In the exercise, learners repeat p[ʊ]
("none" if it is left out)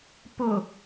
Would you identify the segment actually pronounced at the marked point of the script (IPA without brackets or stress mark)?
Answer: ʊ